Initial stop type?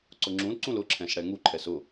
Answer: click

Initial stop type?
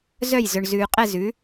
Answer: ejective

